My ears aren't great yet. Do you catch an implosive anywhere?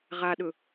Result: yes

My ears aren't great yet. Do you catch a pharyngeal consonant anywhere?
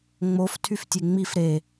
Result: no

